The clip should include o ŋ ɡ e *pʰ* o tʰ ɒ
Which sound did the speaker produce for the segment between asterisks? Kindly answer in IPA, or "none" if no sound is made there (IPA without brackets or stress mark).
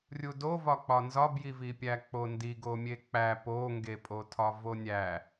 pʼ